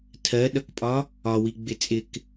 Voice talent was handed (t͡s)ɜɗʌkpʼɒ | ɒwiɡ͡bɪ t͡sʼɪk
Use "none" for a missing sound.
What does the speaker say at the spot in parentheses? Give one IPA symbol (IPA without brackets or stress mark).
tʰ